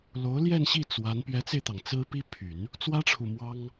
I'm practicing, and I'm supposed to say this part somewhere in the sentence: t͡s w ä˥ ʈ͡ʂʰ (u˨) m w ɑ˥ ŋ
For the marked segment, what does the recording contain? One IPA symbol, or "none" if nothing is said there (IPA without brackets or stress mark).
u˨